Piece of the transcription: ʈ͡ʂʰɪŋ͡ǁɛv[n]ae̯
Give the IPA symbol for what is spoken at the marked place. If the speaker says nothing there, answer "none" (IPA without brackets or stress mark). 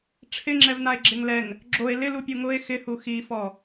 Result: n